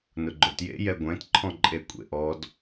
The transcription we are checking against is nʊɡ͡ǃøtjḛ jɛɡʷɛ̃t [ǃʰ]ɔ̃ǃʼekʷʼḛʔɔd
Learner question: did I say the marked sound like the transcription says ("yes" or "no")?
yes